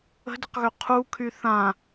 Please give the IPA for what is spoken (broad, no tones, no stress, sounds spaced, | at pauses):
ə̤ d ə q ɣ ø qʰ u kʰ y θ ã